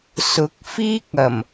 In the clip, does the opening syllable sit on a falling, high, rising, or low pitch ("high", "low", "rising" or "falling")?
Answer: rising